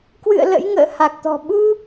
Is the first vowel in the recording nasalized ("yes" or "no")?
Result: no